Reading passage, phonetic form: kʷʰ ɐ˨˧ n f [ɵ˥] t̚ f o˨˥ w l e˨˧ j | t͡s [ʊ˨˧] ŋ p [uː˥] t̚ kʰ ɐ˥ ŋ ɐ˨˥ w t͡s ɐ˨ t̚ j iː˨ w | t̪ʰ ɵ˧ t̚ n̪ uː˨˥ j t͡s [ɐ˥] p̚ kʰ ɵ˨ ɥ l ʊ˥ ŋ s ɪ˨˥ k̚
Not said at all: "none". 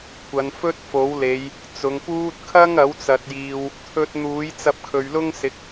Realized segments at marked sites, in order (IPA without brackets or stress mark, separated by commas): ɵ˥, ʊ˨˧, uː˥, ɐ˧